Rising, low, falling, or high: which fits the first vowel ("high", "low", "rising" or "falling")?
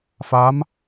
rising